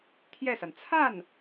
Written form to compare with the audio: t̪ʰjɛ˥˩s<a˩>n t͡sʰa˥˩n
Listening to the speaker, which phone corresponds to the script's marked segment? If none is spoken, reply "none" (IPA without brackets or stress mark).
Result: a˩